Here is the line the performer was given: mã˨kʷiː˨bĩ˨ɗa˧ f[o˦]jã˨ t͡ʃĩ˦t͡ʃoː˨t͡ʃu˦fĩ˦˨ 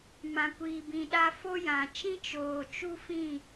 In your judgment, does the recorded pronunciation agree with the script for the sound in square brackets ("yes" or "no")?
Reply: yes